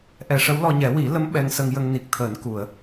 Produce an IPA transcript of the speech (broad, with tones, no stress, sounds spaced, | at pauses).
ʔ ɛ˨˩˨ ʂ ə˧˥ w l ɔ˧ ɲ ɛ˨˩˦ w i˨˩˦ l ə˧˥ m ɓ ɛ˧ ŋ s ə˧ ŋ j ə˧ ŋ n i˨˩ k̚ t̪ʰ əː˨˩˦ n k u˨˩˨ ə̯